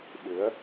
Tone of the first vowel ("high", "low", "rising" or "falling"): rising